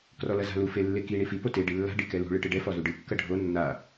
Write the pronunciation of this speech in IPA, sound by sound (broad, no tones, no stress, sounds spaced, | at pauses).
k r ɔ l ɐ z a̤ l u f e lː e k i ɳ i f i p o t e ɖ i lː a̤ ɖ i k ɛ l ṳ ɭ ɨ ʈ ɨ ɖ ɛ f ɔ z u ɖ ɨ kː ɐ ɖʱ o nː a